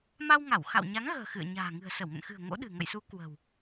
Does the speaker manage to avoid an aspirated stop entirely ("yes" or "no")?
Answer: yes